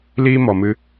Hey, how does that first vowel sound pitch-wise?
high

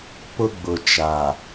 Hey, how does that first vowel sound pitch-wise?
high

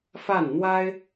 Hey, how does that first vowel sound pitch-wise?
falling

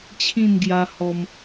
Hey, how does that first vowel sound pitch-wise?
falling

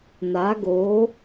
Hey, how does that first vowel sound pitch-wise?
rising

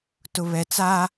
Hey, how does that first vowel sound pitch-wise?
low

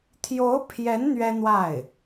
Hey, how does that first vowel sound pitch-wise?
rising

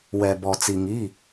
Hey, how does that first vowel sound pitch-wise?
low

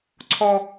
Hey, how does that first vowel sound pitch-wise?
high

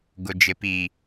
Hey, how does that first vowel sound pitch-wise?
low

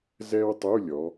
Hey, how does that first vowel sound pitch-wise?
high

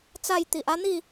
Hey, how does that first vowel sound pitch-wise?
falling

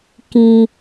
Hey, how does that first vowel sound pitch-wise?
high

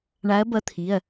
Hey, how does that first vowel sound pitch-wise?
rising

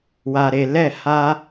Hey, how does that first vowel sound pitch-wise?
low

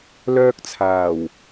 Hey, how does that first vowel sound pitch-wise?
high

